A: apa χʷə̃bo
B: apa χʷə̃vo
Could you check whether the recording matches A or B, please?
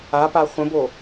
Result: A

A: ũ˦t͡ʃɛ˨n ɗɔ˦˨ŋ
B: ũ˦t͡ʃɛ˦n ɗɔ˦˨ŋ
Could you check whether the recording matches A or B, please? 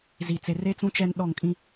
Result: B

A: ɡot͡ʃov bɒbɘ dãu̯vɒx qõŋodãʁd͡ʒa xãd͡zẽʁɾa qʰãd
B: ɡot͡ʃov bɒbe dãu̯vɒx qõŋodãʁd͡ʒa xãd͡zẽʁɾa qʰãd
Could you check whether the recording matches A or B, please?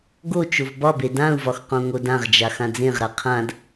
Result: B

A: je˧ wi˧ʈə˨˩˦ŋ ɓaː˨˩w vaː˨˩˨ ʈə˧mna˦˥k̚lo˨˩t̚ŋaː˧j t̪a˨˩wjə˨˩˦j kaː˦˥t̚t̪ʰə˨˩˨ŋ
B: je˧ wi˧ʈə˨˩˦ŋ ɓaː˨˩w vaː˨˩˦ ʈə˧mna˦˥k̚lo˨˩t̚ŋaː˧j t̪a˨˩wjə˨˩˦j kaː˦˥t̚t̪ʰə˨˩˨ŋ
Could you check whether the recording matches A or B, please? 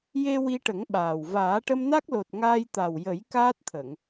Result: B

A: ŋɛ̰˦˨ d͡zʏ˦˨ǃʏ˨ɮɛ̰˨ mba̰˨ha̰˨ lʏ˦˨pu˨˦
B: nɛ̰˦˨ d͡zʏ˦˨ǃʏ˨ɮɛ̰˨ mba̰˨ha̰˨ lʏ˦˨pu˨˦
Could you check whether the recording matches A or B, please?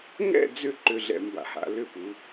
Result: A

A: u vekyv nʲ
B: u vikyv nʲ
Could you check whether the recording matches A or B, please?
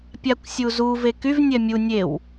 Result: A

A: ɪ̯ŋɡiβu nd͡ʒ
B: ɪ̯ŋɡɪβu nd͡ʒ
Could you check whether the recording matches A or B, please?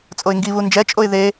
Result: A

